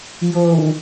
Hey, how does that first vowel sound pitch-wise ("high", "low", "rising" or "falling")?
low